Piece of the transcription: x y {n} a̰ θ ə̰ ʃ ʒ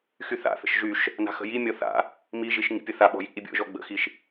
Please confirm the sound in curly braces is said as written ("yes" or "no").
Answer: no